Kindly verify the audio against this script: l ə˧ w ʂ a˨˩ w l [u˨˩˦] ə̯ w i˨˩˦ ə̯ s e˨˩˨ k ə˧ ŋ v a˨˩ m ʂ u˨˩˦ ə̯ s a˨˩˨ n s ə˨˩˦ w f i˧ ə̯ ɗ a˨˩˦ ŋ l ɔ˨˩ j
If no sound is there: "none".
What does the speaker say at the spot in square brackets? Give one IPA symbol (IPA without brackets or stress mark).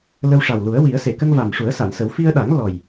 u˨˩˦